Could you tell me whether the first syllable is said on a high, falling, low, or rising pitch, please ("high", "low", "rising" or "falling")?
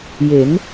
rising